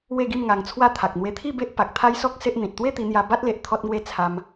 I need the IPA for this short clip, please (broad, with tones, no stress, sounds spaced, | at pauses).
w e˥˧ ɡ i˥˧ m ŋ a˧ ŋ t͡sʰ w a˦ t̪ʰ a˨ k̚ n̪ w e˧ t̪ʰ i˥˧ b e˦ ʔ p a˨ k̚ t̪ʰ a˦ j s ɔ˦ k̚ s e˦ ʔ n̪ ĩ˨ t̚ t̪ w e˥˧ t̪ i˧ n̪ j a˧ b a˦ t̚ l e˨ ʔ t̪ʰ ɔ˦ t̚ ŋ w e˥˧ t͡sʰ a˧ m